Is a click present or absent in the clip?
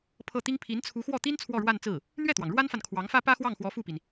absent